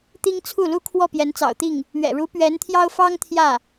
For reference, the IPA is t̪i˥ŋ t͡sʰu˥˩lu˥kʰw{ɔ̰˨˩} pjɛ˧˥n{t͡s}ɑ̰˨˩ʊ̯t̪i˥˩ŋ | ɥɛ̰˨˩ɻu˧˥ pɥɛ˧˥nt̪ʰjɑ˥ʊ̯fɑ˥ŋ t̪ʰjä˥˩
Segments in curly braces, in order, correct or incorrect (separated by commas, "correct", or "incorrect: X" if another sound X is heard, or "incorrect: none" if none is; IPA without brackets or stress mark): incorrect: ɔ˥˩, correct